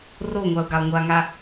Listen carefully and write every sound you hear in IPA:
r o ŋʷ a ʊ̯ ɡ a lˠ ŋʷ a ŋ a

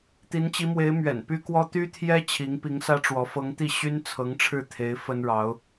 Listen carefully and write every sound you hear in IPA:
t̪ i˧˥ n t͡ɕ i˧˥ m w e˧˥ ɪ̯ m ɥ ɛ̰˨˩ n p y˥ k w ɔ˥ t̪ y˥ t̪ʰ j ɛ˥ t͡ɕʰ i˧˥ ŋ p i˧˥ ŋ s ä˥ ʈ͡ʂ w ɔ˧˥ f ɤ˧˥ ŋ t̪ i˥˩ ɕ y˥ n t͡sʰ ɤ˧˥ ŋ ʈ͡ʂʰ ɻ̩˥˩ t̪ʰ e˧˥ ɪ̯ f ə˥ n ɻ ɑ˧˥ ʊ̯

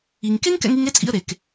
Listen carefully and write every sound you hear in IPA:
i˨ ŋ k e˦ ŋ k ɛ̰˧ ŋ i˧ ŋ e˦ t͡sʼ ḭ˧ ə̯ ɾ e˨ k

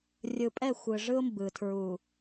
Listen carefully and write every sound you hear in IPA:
rʲ ɯ˨ pʼ ɛ˦˨ xʷ ɯ˨ ʐ ɯ˦ ʊ̯ m b ɯ˨ tʰ ɹ u˨

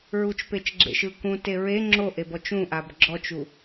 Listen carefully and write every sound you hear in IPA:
ɹ u t͡ʃ p e t͡ʃ ɡ͡ǁ ḛ ʃ ɯ k ũ t e ɹ e ŋ͡ǁ o ʔ e b ɔ t͡ʃ ũ ʔ a b ɡ͡ǁ ɔ t͡ʃ u

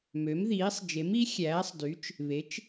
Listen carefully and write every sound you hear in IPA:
m ø˩˥ m ð iː˩˥ sˤ d͡ʒ e˩˥ m i˩˥ xʲ æː˩˥ sˤ d y˩˥ t͡ʃ | β e˩˥ t͡ʃ

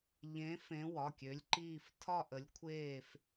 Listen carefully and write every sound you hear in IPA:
ʎ ẽ˨˦ f ẽ˨˦ w ɒ˩˧˩ kʲ ø˨˦ lʲ ǃ iː˦˨ f tʰ ɒ˦˨ ʔ ə˨˦ lʲ kʷʰ eː˦˨ f

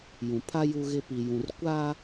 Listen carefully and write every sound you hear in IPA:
j ũ˨ pʰ a˦ j u˦ ɣ ɪ˦ p i˨ j ũ˨ r kʷ a˦

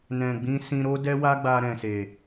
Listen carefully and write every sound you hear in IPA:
n ɛ̃˨ ɡ͡b ĩ˧ s ĩ˧ ɾ o˦ d ɛ˦ w a˦ ɡ͡b a˧ ɾ ɛ̃˨ s e˨

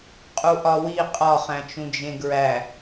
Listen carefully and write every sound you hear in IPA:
qʼ u ʔ ɒ w i qʼ ɒ χ æ̃ t͡ʃ ũ d͡ʒ ẽ ɡ ɹ æ

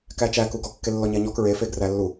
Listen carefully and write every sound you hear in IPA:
k æ t͡ʃ æ k u ɡ ɔ kː e lː ɔ ɲ æ ɲ ɔ k ɹ e f e ɡ r æ lː u

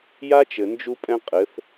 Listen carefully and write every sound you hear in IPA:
j a˦ t͡ʃ ɘ˨ n d͡ʒ u˦ pʼ ɛ̃˦ qʼ ɘ˨˦ θ

